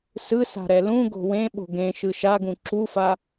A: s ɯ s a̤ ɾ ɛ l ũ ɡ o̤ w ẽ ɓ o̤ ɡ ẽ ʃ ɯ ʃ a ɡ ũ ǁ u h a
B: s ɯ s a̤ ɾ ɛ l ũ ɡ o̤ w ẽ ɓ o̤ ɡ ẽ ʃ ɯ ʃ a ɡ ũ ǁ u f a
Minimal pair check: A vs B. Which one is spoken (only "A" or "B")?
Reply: B